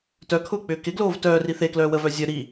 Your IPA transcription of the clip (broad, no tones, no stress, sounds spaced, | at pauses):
t œ kʰ ʊː k͡p ʏː k ɪ ɡ l oː v t œː r i θ e k l œː w ə v œ zʲ œ ɾ i